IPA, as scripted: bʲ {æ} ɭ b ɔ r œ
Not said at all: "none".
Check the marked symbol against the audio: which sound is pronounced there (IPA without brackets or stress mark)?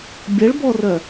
ɐ